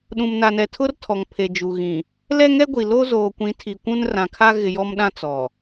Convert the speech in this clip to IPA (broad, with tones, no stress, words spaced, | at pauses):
ɗũ˨mna˨nɛ˨ tʰʊ˦r tʰɔ˨ŋpʰe˨d͡ʒu˨ ɣĩ˨ | lɛ˦ŋɛ˦ɡʷi˨lo˦ zoː˨kʷĩ˨˦tʰi˨ kʷũ˦nrã˨kʰa˦ ɣɪ˨jɔ˦mɗã˦ t͡sɔ˨